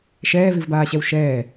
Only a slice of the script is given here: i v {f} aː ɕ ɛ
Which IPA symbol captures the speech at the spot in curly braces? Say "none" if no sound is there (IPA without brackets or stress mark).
b